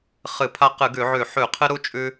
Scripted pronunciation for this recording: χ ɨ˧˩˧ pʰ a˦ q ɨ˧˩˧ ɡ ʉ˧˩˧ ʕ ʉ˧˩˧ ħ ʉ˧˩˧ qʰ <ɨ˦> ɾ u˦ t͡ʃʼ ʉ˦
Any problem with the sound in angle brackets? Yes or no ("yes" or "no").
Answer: no